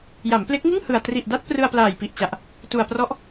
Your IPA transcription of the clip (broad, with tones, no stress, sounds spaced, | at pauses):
j a˩˦ m p l e˦˥ k̚ ŋ ɯ˥˩ ŋ h ɯ˨˩ a̯ t r i˨˩ ʔ d a˦˥ t̚ p r ɯ˧ a̯ p l aː˨˩ j p i˨˩ ʔ t͡ɕ a˨˩ ʔ | t u˨˩ a̯ p r ɔ˦˥ ʔ